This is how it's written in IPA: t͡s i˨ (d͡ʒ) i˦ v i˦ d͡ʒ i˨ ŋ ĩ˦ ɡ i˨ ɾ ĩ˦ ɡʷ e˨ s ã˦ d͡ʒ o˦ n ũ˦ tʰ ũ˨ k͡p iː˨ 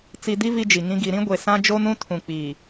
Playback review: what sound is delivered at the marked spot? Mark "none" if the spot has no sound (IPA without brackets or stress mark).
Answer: d